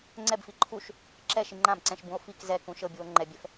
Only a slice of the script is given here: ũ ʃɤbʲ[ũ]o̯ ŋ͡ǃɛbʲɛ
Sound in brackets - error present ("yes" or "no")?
yes